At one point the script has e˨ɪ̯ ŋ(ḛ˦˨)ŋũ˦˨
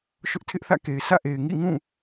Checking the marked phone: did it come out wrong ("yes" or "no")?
yes